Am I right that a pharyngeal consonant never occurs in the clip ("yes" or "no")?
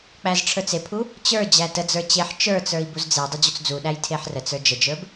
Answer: no